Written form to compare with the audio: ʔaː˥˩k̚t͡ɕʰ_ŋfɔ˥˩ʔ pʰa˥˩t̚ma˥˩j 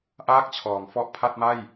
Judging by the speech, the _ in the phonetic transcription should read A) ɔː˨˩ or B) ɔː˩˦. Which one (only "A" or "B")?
B